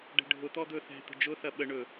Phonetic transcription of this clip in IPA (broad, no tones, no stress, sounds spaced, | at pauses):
ɖ ɛ̤ ɖʱ ʊ t̪ ɔ d̪ ɵ θ ɛ̤ t̪ ə̤ d͡ʒ ʊ θ ɐ ɓ ə ɳ ɵ